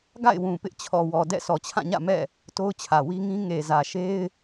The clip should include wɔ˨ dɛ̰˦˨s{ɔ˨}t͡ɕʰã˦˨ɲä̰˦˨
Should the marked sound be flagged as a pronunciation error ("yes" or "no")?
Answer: no